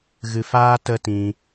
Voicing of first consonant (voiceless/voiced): voiced